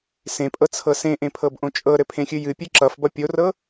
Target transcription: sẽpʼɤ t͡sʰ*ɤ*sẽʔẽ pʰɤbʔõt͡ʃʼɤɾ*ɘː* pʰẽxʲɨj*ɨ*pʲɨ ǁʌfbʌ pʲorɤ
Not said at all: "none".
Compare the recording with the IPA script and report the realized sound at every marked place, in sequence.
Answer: ɤ, ɘ, ɨ

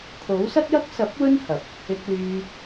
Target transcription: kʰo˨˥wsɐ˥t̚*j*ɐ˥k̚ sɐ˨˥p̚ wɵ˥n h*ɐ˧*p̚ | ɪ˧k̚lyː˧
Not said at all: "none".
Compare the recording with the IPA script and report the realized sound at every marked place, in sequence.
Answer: j, ɐ˨

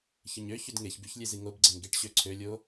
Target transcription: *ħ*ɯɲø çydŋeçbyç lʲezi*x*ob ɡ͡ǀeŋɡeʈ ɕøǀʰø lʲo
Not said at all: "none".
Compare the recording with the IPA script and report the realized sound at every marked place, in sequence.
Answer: ç, ŋ

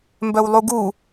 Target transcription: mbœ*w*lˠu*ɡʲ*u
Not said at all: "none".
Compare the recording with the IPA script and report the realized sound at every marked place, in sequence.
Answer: w, ɡ

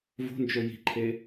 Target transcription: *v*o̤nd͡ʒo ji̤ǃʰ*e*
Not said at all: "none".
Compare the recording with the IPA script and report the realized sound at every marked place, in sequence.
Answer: v, e

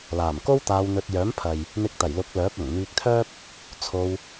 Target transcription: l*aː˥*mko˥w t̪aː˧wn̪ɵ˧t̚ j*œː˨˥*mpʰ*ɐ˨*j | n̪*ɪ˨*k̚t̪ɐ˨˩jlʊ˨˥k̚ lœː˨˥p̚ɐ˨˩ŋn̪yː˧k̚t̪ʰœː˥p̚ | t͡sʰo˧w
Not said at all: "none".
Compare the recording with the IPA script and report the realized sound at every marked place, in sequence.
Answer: aː˨˩, œː˨˥, ɐ˨, ɪ˧

